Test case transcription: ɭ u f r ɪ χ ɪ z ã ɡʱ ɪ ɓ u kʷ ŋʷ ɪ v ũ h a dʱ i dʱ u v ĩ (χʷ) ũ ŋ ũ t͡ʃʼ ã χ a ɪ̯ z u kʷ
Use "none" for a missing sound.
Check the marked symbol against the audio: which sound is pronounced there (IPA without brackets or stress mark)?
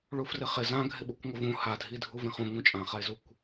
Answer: χ